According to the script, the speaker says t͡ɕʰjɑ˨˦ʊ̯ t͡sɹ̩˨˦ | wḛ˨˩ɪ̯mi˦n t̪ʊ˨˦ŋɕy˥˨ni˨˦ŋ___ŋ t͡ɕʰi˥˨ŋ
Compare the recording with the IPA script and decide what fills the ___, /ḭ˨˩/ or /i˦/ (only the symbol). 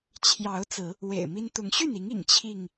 ḭ˨˩